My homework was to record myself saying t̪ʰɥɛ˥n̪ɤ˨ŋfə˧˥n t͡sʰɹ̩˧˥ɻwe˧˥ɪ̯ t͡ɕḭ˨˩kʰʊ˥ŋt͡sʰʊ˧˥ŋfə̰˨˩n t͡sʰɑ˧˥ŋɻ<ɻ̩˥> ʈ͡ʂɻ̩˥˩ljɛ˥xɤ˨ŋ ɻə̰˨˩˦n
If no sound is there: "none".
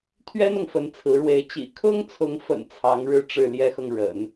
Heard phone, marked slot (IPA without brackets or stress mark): ɻ̩˥˧